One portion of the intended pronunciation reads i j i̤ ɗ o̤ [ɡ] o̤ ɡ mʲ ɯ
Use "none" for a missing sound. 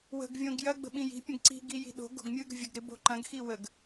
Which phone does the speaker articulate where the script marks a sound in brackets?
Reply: ɡ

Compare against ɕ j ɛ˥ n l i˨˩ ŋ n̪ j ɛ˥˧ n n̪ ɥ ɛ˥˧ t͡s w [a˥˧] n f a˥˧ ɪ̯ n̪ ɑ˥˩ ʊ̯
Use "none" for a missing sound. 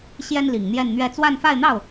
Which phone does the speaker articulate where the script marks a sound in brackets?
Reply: a˥˧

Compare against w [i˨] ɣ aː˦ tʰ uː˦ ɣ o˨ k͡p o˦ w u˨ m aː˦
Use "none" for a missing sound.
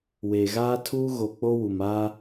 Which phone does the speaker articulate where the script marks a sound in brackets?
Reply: e˨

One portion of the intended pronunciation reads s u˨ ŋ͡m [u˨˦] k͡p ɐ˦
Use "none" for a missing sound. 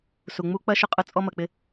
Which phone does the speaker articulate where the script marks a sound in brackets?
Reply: u˦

